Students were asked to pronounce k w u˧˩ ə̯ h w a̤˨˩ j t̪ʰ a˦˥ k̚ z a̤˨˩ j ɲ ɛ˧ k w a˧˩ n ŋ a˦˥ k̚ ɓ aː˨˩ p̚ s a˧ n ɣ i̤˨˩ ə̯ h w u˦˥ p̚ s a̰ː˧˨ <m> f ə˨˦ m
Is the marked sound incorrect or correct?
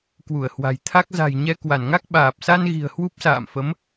correct